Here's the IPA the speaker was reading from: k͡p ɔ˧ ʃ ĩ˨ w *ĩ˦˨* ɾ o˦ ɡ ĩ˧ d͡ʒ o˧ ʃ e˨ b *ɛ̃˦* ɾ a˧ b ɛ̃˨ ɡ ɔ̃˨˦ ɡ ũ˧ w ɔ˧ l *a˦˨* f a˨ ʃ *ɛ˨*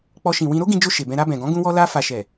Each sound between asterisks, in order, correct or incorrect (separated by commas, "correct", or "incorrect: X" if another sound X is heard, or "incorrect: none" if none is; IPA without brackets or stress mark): incorrect: ĩ˧, incorrect: ɛ̃˧, incorrect: a˧, correct